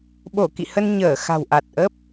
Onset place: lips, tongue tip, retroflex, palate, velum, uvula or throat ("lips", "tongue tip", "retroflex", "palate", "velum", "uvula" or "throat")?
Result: lips